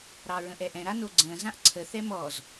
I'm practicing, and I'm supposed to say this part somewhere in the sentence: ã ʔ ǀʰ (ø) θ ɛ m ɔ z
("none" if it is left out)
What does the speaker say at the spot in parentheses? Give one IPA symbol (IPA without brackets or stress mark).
ə